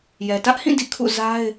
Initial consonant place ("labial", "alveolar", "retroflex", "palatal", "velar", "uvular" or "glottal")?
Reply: palatal